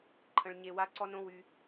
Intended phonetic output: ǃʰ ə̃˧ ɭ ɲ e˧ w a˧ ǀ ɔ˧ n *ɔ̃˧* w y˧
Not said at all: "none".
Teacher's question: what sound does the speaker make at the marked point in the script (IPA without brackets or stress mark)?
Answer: õ˧